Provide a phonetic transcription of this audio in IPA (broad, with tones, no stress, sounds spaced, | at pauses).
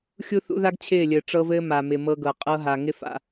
xʲ u˦ θ ṵ˦ ð a˦ ɡ t͡ɕʰ ɪː˦˨ lʲ ɘː˨ ʈ͡ʂ ɤ˦ v ɘː˦ m a˨ m ɪ˨ m ɤ˦ ɡ ɤ˨ qʼ ɤ˦ ɦ a˨ ŋ ɪ˦ f a̰˨